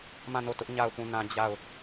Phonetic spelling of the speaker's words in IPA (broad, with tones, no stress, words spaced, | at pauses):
mã˦˨no˦˨tʊ˦ʔ ɲa˦˨ʊ̯pũ˦˨nã˦ d͡ʑa˦˨ʊ̯